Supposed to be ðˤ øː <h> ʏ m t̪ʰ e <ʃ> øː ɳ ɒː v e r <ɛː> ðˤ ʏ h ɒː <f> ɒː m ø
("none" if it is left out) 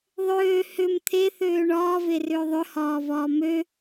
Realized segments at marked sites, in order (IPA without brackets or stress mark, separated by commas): h, θ, ʏː, v